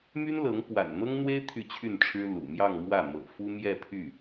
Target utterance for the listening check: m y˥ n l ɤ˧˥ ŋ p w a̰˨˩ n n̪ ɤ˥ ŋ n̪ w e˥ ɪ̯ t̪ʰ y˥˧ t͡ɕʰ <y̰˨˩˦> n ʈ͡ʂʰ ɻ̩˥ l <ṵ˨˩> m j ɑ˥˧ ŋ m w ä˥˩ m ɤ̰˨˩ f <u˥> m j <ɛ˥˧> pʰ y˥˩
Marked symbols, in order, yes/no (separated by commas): no, yes, yes, yes